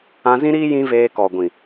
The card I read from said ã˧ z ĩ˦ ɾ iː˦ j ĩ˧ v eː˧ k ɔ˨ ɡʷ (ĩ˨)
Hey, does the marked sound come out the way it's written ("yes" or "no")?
yes